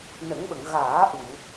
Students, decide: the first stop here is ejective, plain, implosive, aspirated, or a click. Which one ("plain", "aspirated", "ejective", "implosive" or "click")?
implosive